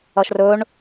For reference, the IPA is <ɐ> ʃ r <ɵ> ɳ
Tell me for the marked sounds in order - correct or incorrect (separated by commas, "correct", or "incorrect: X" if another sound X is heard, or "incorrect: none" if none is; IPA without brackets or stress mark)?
correct, correct